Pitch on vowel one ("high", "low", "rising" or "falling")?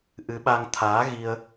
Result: rising